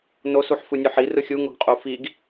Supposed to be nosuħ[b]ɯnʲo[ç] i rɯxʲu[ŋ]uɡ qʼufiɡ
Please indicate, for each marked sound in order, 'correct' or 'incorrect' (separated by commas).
incorrect, incorrect, correct